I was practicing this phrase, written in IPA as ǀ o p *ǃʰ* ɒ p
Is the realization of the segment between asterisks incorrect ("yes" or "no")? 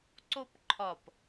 no